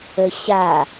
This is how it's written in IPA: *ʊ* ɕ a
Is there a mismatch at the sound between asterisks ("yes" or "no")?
yes